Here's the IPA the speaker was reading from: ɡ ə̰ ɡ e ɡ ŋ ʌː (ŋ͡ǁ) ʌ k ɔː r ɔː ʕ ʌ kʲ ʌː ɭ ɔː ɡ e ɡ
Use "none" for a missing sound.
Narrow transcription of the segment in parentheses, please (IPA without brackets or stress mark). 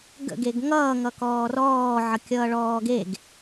ŋ